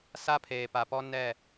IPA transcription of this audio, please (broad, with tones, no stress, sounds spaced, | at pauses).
s a˦ pʰ eː˨ p a˨ p ɔ˦ n ɛ˦˨